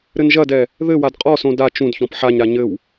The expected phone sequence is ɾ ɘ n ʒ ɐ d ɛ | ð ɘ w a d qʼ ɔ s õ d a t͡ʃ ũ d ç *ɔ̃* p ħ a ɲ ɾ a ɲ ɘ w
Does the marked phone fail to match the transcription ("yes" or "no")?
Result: no